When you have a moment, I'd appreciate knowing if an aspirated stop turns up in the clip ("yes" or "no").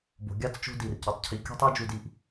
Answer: yes